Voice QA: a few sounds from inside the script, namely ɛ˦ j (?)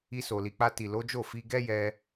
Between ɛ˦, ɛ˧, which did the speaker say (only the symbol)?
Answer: ɛ˧